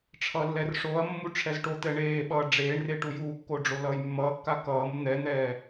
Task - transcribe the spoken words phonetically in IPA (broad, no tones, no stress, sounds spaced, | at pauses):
ʈ͡ʂʰ ʌ lː ɛ r ʂ o ɐ̯ mː u ʈ͡ʂʰ ɛ z ʈ o t̪ ɛ ɳ eː ɓ ʌː ɖ͡ʐ eː ɳ r e ʈ u j uː kː o ɖ͡ʐ o l ʌː j mː ʌː kː a k ʌː m n̪ ɛ n̪ ɛː